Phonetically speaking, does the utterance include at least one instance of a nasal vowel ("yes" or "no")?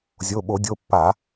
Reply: no